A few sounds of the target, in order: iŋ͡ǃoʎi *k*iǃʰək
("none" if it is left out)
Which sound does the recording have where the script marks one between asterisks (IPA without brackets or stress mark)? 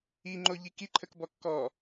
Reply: k